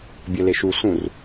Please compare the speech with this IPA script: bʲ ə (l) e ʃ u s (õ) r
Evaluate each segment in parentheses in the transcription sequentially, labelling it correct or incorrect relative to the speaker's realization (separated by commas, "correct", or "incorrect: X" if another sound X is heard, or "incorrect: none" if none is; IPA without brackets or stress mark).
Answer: correct, incorrect: ũ